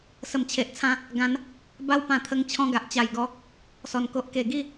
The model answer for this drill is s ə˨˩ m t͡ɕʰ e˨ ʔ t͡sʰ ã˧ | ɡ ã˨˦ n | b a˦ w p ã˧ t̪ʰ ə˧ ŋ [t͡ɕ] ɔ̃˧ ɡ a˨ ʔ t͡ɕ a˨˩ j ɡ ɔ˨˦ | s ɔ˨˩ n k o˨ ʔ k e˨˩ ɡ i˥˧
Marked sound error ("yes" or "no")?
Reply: yes